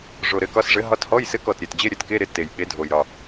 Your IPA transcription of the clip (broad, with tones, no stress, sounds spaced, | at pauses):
ʐ o˨˩ ɾ ɘ˨˦ k ɒ˨˦ s ʐ ɘ˨˦ ɦ ɒ˧˥˧ t h ɔ˧˥˧ j s ɘ˧˥˧ k ɔ˨˩ t ɾʲ e˨˩ t d͡ʑ e˧˥˧ ɾʲ ɘ˨˦ t k e˧˥˧ ɾ ɪ˨˦ t e˨˩ j ɓ e˨˦ dʱ o˨˩ j ɾ ɒ˨˩